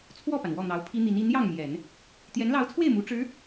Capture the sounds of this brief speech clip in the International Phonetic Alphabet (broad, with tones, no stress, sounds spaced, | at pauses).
t͡sʰ w ɔ˥˩ p a˩ n w ɔ˥˩ n̪ ɑ˧˥ ʊ̯ pʰ i˥ n̪ i˧˥ n i˧˥ n j ɑ˥˩ ŋ m j ɛ˨˩˦ n | t̪ j ɛ˧˥ n l ɑ˧˥ ʊ̯ t͡sʰ w e˥˩ ɪ̯ m u˧˥ ʈ͡ʂ ɻ̩˧˥